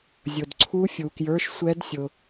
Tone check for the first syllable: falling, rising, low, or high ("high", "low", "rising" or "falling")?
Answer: low